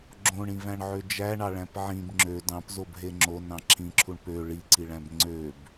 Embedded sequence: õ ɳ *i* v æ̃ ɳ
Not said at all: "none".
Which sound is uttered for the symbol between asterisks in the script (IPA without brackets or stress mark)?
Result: ĩ